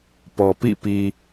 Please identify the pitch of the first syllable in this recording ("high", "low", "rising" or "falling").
low